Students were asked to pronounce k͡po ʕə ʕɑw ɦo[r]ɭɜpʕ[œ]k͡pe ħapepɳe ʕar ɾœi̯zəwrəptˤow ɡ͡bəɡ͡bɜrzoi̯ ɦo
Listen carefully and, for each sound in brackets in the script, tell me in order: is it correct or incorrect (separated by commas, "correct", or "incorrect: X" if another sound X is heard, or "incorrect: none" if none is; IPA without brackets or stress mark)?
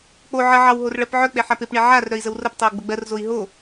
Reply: correct, correct